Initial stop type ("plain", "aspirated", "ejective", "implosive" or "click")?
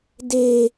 plain